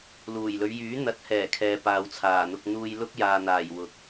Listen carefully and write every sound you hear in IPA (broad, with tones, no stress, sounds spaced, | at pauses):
l uː˨˩ j l ɵ˨˧ ɥ j yː˨˥ n̪ ɐ˨˥ t̚ h ɛː˨˩ kʰ ɛː˨ p aː˨ w t͡sʰ aː˨˩ n̪ ʊ˧ k̚ n̪ uː˧ j l ʊ˥ k̚ j aː˨ n̪ aː˨˩ j w ʊ˨˥ k̚